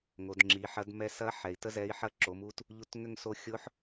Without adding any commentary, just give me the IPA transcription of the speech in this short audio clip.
ŋ o˩˧ d ŋ͡ǁ i˩˧ ħ ɐ˧˥ d m ɛ˧ s ɐ˧˥ ħ ɛ˩ i̯ t ə˥ z ɛ˧˥ i̯ ħ ɐ˥ ǁ o˩˧ m u˧˥ t | ʎ u˧˥ t ŋ ʏ˥ ŋ s o˧ xʲ ʊ˧˥ ħ

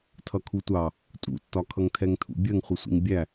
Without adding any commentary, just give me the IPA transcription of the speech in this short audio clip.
tʰ ʌ kʰ u tʷ ɑ | tʼ ṵ tː ɒ kʰ ʌ ŋ tʰ ɛ ŋ tʰ ṵ bʲ ɜ ŋ χʷ ɪ sʷ ḭ ŋ bʲ æ

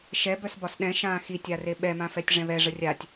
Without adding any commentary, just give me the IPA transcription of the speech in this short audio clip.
ʃ ɛ b œ s b ɒ s ɗ ɛ̃ ʃ ãː x i tʲ a r e ɓ ɛ m ã f ɛ tʲ ʐ ɛ̃ β ɛ ʐ ə rʲ a tʲ

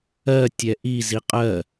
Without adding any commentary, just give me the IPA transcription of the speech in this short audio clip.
ɜ tʲ ɛ ʔ i z i qʼ ɜ

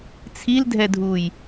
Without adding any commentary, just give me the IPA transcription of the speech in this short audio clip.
t͡sʰ i l dʱ ɛ dʱ uː j

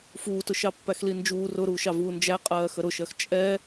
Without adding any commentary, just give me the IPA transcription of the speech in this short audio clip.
f uː t ʊ ʃ ɑ pː æ x l i n d͡ʒ uː r ʊ ɾ uː ʃ ɑ v uː n d͡ʒ æ qʼ ɜː x ə ɾ ʊ ʃ ɜ x t͡ʃʼ ɛ

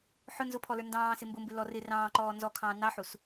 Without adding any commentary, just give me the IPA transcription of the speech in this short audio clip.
ħ ʊ n z ʊ pʰ ɔ l ə˞ n d ɑ̃ː s ɪ m b ʊ m b ɪ l ɔ r ɪ r ɑ̃ː ǃ ɔː n z ɔ kʰ ɑ̃ː n ɑ ħ u s

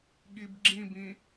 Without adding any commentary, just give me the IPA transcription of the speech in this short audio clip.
ɠ i b ɡ͡ǁ ĩ b ĩ

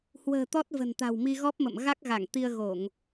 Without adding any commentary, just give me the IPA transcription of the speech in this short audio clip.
h w ə̤ː˨˩ t̪ ɔ˦˥ t̚ v ə̤˨˩ n t̪ a̤˨˩ w m i˧ ɣ ɔ˦˥ p̚ m ə̰˧˨ m ɣ a˦˥ k̚ ɣ a˧˩ ŋ t̪ i˧ ə̯ ɣ o˧˩˨ ŋ

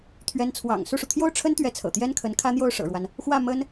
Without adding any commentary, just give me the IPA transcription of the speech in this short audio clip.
t̪ʰ ɥ ɛ˧˥ n t͡sʰ w ɑ̰˨˩ ŋ s u˥˩ ʂ u˩ t̪ʰ j o˥˩ ʊ̯ ʈ͡ʂʰ ə˥ n t̪ ɥ ɛ˧˥ t͡sʰ ɤ̰˨˩ t̪ j ɛ˥ n kʰ ə˧˥ n kʰ ä˥ n̪ j o˥˩ ʊ̯ ʂ ɤ̰˨˩ ɻ w a˦ n | x w ä˥˩ m ə˥ n

